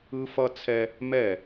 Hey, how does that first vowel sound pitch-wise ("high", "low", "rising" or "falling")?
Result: high